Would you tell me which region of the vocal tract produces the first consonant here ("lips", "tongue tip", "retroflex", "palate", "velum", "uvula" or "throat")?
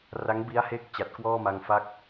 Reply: tongue tip